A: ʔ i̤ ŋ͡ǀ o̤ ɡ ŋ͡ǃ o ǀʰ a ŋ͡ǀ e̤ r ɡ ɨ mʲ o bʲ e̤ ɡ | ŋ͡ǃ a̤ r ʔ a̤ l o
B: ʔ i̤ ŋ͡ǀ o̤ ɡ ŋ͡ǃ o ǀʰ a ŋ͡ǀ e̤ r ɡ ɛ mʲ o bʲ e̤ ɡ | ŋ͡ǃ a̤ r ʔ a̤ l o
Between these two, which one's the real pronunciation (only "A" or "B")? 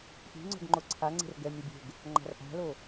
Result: B